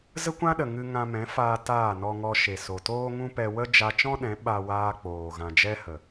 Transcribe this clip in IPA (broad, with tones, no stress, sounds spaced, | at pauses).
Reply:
z ə˦ kʷ ã˦ ɗ ə˨ ŋ ɨ˧ ŋ ã˧ m ɛ̃˨˦ f aː˧ t aː˦˨ n ɔ˧ ŋ ɔ˧ ʃ e˨ s o˨ t oː˦ ŋ ũ˦ p ɛ˧ w ə˦ d͡ʒ a˧ t͡ʃ ɔ̃˦ ɗ ɛ̃˨˦ ɓ a˧ w aː˧ k͡p oː˨ ɣ ã˨ d͡ʒ ɛ˦ h ə˨